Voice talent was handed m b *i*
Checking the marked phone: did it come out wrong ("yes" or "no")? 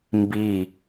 no